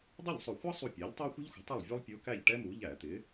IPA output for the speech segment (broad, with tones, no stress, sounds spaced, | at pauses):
dˤ ʌ˥˩ ʎ sˤ ʊ˧˩˧ xʷ ɑ˥ sˤ u˥˩ pʲ ɛ˩˥ ʎ tˤ ɑ˥ xʷ ə̤˥ ʎ xʷ ə̤˩˥ tˤ ə˥˩ lˠ vʲ ɔ˥ lˠ pʲ ʊː˧˥ k æ˥˩ ʎ ʈ ɛ˥ m u˩˥ ʎ æ˧˩˧ t̪ ɪː˩˥